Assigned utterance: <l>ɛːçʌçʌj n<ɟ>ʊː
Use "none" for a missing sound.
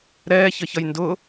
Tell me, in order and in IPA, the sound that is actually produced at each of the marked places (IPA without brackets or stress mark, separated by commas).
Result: ɾ, d